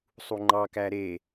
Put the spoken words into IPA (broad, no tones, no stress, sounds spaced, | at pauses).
sˤ u ŋ͡ǃ ɑ k æ ɾ e